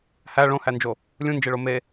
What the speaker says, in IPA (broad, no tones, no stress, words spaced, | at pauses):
hæ ɭõhænd͡ʒo | lʲũnd͡ʒeɭo me